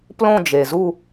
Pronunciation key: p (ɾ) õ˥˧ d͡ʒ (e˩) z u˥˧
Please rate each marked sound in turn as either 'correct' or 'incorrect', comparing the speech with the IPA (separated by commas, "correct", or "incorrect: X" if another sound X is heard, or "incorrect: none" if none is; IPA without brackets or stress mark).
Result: incorrect: l, correct